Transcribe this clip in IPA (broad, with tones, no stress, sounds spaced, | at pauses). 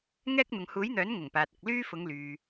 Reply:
ŋ ɛː˥ k̚ n̪ ʊ˨ ŋ h uː˨˥ j n̪ œː˨˥ n ŋ ʊ˨˩ ŋ p aː˨ t̚ ʊ˨ k̚ l yː˥ f ʊ˨˧ ŋ l yː˨